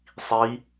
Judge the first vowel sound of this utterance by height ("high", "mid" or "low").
high